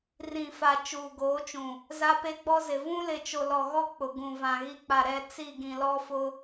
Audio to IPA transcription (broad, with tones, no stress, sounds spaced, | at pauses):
r ĩ˨ f a˨ t͡ʃ uː˨ ɡ oː˨˦ t͡ʃ ũ˨ | z a˦ p e˦ ɡ͡b ɔ˦ z ɪ˨ v ũ˦ l ɪ˨ t͡ʃ o˨ l ɔ˨ ɣ ɔ˦ k͡p ʊ˨ ɡ ũ˨ v ã˨ ɣ i˦ k͡p a˨ ɾ ɛ˦˨ t͡s i˦˨ ɡ ĩ˨ l ɔ˦ f ʊ˦